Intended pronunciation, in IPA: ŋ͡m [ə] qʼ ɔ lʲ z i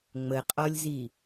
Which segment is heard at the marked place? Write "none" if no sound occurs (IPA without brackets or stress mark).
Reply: ə